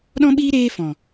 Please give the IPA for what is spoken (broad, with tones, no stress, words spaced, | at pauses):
ɗɔ̃˦ɓiː˦ ɾeː˦fɔ̃˨